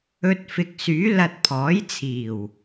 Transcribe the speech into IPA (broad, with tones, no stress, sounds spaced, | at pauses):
ɵ˧ t̚ f ɪ˨ k̚ s yː˨˥ l ɐ˧ t̚ pʰ ɔː˨˥ j t͡sʰ iː˨˩ w